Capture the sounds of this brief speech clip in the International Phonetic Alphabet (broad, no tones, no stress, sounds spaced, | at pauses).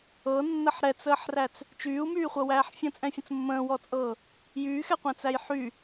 ɤ nː ə ħ ɾ ɛ t͡s əː ħ r æ t͡s | t͡ʃ yː u̯ m yː χʷ ɤ w æː ħ fʲ ə̃ t͡sʼ ɛ̃ fʲ ə̃ t͡s mː ə̃ː w ɔ t͡sʼ ɤː | j yː x ɛ qʷ ɛ̃ t͡s æ j ħ y